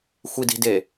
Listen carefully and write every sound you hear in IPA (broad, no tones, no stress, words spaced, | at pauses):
xʷidi̤de